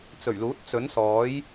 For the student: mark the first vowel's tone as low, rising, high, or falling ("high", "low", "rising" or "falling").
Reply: low